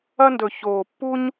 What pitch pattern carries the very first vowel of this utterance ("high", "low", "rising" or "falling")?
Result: high